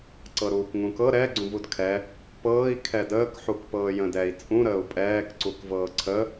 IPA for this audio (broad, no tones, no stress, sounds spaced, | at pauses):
ǀ ɤ ɾ uː k ŋ ũ k ɤ ɾ ɛ ɡ͡ǀ ũ v u d kʰ ɛ | p ɤː i̯ kʰ ɛ d əː k ħ u k p ɤː j ə̃ d ɛ i̯ t͡sʼ ũ ɾ əː u̯ pʼ ɛː k ǀ u k v ɤː ǀʰ ə